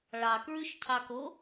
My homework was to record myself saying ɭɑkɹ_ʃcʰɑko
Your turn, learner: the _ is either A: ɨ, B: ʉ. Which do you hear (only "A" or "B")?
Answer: B